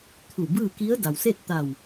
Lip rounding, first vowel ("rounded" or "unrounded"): rounded